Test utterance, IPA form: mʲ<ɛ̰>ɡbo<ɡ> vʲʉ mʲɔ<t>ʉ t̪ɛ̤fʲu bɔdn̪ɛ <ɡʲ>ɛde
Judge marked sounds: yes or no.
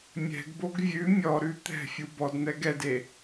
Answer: no, yes, no, no

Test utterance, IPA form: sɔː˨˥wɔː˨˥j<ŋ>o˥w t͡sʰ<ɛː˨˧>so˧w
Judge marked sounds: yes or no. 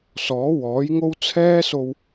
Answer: yes, no

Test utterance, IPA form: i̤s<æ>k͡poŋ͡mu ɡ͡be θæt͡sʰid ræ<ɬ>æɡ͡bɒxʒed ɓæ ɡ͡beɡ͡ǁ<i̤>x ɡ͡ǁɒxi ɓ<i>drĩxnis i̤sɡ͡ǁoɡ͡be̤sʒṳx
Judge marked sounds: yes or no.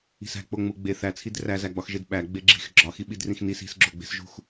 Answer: no, no, yes, yes

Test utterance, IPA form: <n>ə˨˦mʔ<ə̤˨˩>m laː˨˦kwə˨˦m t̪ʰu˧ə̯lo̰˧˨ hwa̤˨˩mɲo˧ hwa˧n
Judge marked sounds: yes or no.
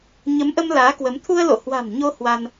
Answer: no, no

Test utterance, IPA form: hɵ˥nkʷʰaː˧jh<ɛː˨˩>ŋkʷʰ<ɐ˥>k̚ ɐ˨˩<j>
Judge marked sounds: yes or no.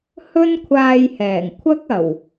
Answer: yes, yes, no

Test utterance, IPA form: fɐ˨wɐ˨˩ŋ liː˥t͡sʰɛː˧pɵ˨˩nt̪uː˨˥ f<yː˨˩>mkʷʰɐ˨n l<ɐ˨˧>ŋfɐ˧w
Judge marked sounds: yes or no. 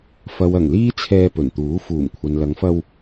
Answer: no, yes

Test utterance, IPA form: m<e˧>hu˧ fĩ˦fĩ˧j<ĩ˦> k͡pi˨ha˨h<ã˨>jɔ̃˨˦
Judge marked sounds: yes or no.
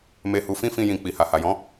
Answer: yes, no, no

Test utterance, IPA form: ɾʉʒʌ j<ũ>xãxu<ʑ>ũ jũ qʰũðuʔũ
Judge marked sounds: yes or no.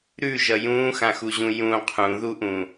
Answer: no, yes

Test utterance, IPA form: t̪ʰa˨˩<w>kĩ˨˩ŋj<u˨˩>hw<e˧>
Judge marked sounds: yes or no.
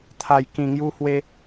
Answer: no, no, yes

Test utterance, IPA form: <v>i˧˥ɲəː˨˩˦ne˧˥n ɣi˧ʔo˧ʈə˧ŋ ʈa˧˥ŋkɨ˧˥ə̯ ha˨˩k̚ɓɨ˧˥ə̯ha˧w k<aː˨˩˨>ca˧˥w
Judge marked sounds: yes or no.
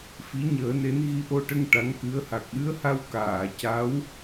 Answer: no, yes

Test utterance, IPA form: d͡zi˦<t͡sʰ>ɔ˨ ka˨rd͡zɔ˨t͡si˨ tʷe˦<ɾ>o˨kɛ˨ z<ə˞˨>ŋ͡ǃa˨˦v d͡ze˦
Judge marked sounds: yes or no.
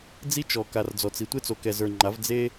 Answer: no, no, yes

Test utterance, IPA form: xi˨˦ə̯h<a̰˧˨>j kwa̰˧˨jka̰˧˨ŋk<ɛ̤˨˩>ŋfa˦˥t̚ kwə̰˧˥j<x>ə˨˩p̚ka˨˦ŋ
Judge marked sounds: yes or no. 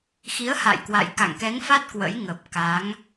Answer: yes, no, no

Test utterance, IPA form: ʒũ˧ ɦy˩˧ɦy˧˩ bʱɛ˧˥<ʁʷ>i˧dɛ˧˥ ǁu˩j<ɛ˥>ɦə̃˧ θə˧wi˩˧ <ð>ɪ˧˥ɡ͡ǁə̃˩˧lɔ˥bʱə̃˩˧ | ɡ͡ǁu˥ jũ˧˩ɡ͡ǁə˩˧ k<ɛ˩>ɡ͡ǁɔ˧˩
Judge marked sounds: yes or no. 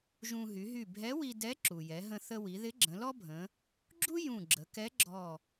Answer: no, no, yes, no

